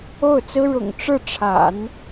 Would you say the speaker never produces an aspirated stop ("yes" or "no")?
no